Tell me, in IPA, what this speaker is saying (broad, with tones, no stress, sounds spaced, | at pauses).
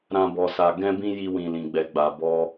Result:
ɾ ã˦ b ɔ˧ s a˧ ɡ ɛ̃˦ b ĩ˦ j i˧ w ĩ˨ l ĩ˨ ɡ͡b ɛ˨ ɡ͡b a˨ b ɔ˧